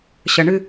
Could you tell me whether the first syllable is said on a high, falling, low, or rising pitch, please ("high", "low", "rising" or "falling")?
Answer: low